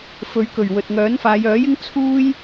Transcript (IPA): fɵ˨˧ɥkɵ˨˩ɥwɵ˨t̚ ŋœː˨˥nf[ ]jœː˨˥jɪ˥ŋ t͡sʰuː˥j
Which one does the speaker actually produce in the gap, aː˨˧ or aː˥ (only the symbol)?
aː˨˧